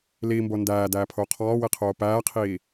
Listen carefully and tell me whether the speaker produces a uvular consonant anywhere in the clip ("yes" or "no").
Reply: yes